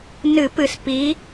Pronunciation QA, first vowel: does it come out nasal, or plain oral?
oral